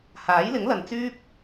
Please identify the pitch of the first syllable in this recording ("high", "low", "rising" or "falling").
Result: rising